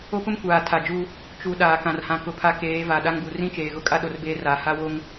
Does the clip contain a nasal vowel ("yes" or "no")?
yes